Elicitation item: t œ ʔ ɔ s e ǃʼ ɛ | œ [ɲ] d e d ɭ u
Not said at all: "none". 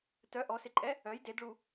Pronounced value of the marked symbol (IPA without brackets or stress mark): j